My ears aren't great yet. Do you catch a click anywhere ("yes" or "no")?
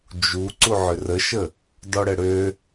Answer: yes